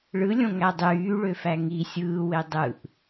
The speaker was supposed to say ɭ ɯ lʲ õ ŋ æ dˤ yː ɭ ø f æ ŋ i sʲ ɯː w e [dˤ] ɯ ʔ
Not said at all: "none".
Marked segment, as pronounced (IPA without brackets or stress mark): dˤ